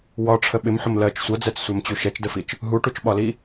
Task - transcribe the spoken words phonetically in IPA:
w ɒ ʈ͡ʂʰ ə ɓ ɪ m ħ ʊ m l ɜ t͡ʃ sʷ ʌ d͡z ɛ t͡s sʷ æ m t͡ɕ u ʃ ɛ t͡ʃ d ə f i t͡ʃ | ɦ u ʈ u t͡ʃ ɓ ɒ l i

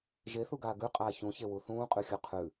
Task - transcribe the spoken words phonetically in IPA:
ʒ e θ u ɡ aː ɡ ʉ qʼ aː ç ũ ç e w u θ ũː qʼ ʉ xʲ ɵ qʰ ʉ

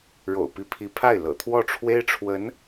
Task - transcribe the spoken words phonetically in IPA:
ɻ o̰˨˩ ʊ̯ p i˧˥ pʰ i˧˥ pʰ a˥˩ ɪ̯ l ɤ̰˨˩ t̪ʰ w ɔ˥˩ ʈ͡ʂʰ w e˥ ɪ̯ ʈ͡ʂʰ w ə˧˥ n

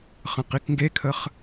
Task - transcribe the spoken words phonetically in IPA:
χ ə̃ q i k ŋ ɡ e kʰ ə χ

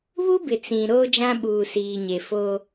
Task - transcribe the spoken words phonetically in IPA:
β u˦ b ɪ˨ t͡s ĩ˨ ɾ oː˦ d͡ʒ ã˦ ɓ uː˨ s iː˨ ɲ e˨ f oː˦

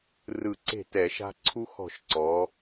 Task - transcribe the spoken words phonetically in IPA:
r ɯ˧˩ ǀ e̤˥˩ t ɛ˧˩˧ ʃ a̤˦ ǀʰ u˦ x ɔ̤˧˩ ʃ ǀ ɔː˩˧

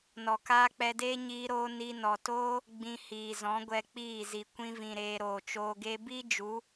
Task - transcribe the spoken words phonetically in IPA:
n ɔ˨ k aː˦ k͡p ɛ˧ d eː˦ ɲ iː˧ ɾ oː˧ n i˧ n ɔ˨ t oː˦ | ɡ͡b ĩ˧ h iː˨ z ɔ̃˨˦ ɡʷ ɛ˧ k͡p iː˦˨ z i˨ kʷ ĩ˧ v ĩ˨ ɾ eː˧ ɾ oː˨ t͡ʃ oː˧ ɡ e˦ b i˦ d͡ʒ u˨˦

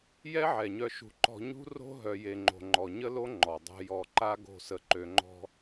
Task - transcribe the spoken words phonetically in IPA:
j ɛ˦ ʕ ɛ˨ ɲ œ˧ ʃ ṳ˧ ǃ ɔ̤˧ ɲ ṳ˦ r o̤˦ ɦ œ˧ j e˧ ŋ͡ǃ o̤˧ ŋ͡ǃ ɔ˨ ɲ ə˦ l o˦ ŋ͡ǃ ɔ˨ dˤ o̤˧ j ɔ˧ ǃ a˦ ɡ o̤˦˨ s ə˧ ǃ ø˧ ŋ͡ǃ ɔ̤˦

